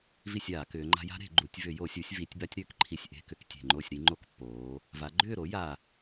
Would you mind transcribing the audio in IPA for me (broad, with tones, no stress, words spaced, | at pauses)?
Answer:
vi˥˨sʲaː˧˩˧kʏː˩˧ŋ͡ǃa̤˦ ja̤˦ ɾe̤˧˩˧ɡ͡ǃu˩˧tʲ vʏ˧˩˧jo˧˩˧sʲu˩˧sʲ vi˩˧tʲba˦tʲɾʏː˩˥kǃʰi˨˩sʲ ʔe̤˥˨kʏ˥˨ktʲe̤˨˩ŋ͡ǃo˥˨sʲ ɾi˦ŋ͡ǃo˦kpːoː˩˧ | va˩˧ɡ͡ǃʏː˥˨ɾo˩˥ ja˨˩